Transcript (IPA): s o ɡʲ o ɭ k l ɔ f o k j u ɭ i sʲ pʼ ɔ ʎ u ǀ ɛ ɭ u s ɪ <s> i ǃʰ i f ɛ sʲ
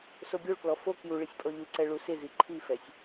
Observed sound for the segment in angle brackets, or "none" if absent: z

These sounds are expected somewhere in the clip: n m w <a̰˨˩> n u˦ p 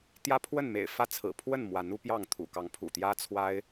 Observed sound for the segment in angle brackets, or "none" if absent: a˨˦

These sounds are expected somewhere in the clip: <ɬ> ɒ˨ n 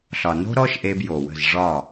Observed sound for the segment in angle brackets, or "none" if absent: ɬ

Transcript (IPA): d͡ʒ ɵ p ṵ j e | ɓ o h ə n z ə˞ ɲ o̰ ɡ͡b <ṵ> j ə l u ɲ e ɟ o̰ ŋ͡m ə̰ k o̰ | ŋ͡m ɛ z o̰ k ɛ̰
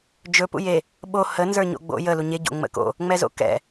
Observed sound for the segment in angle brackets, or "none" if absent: o̰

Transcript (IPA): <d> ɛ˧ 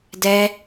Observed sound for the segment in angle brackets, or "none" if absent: d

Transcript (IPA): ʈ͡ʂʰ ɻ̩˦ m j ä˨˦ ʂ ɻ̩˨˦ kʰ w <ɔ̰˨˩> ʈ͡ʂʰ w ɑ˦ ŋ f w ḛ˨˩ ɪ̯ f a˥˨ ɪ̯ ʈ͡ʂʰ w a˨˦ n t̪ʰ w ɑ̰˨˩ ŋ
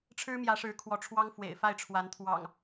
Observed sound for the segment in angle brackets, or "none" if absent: ɔ˨˦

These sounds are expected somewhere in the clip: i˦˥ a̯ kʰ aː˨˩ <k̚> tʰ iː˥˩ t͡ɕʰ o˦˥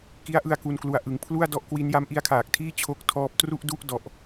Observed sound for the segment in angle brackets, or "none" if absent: k̚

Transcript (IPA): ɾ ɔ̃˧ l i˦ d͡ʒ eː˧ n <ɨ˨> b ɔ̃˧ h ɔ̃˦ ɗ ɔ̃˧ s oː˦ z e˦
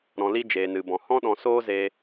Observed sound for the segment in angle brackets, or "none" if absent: ɨ˧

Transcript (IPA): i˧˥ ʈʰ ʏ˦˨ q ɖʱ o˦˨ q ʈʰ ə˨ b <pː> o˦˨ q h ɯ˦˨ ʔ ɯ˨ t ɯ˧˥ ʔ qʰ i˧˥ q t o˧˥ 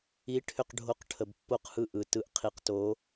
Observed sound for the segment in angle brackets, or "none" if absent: pː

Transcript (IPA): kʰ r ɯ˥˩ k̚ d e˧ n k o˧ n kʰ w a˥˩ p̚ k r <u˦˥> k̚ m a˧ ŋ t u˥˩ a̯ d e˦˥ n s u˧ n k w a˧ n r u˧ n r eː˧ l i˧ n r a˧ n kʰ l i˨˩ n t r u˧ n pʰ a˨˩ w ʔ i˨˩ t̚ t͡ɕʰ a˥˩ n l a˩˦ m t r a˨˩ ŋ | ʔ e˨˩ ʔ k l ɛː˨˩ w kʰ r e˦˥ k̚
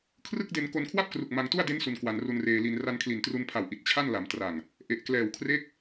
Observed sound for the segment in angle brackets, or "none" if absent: u˨˩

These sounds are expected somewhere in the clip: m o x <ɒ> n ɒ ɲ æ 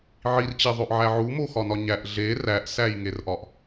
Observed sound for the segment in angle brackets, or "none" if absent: ɒ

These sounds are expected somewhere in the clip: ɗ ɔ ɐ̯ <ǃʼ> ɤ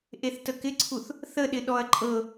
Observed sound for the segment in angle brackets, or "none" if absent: ǃʼ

